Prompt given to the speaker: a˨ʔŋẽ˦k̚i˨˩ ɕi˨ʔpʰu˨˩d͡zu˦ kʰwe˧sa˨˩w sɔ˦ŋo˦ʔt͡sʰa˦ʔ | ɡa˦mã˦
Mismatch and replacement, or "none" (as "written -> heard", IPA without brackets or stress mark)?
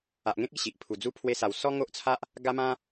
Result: kʰ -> pʰ